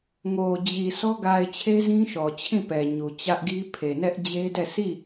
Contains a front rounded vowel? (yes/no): no